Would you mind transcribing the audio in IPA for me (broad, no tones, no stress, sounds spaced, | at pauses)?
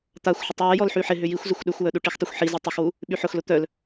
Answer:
t̪ a xʷ ħ ʊ tˤ w ɛ j ɔ l ħ y ħ ɪ ɦ ʏ j i xʷ z ʏ xʷ ɗ ʏ xʷ w œ ɗ u ʈ i x tˤ ʏ xʷ ħ i z i tˤ ɪ x w u | ɓ y ħ ʊ x l ʊ t̪ œ l